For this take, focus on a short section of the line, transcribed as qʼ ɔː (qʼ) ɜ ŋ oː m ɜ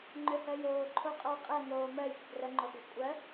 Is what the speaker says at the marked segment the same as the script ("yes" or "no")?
yes